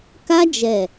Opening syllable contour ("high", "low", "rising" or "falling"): high